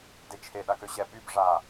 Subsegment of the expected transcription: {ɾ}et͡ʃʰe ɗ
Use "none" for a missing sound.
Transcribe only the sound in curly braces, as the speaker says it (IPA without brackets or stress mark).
d